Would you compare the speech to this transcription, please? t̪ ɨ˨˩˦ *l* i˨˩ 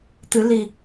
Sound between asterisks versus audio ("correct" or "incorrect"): correct